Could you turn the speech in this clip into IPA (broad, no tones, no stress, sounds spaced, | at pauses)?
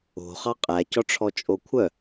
o̤ χ ɑ qʼ æ c ɔ ʈ͡ʂʰ ɔ t͡ʃʼ o kʷʰ œ